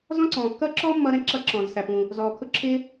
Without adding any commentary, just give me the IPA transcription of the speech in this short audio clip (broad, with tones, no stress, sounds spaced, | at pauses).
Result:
z ɔ̃˥ ǀ ɔ̃ː˩ kː ʌː˥ ǁ ɔ˥ mː ʌ˥ ɾ ɛ̃˥ ǁ ʌ˥ ǁ ɔ̃ː˩ z s æ˩ p ũ˩ | z ɔː˩ kʰ ʊ˥ ǁʰ ɪː˥